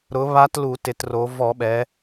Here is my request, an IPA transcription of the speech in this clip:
ɾ ʊ˩˥ β a˧˥ t l u˧˩˧ t ɪ˩˧ t r o˩˧ v ɔ˧˩˧ ɓ ɛ˩˧

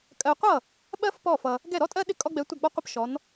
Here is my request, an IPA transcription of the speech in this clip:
kʼ ɜ˧ qʷ ʌ˥˨ | ɓ ɜ˥ f p ɔ˥˨ f ʌ˧ | ɡ ɛ˥˨ ɾ ɔ˥ tʼ ɜ˥ ɗ ɪ˥ kʼ ɔ˥ ɡ͡b ɛ˧˥ tʷ ʌ˥˨ ɡ͡b ɔ˥ qʷ ɪ˥ p ʃ ɔ˧˥ n

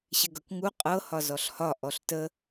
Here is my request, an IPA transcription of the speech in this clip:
ɕ ɪ ɡ ɤ k ŋ u qʼ ɤ h ɒ z ɔ ɬ h ɒ ʔ ɔ ɬ t ə

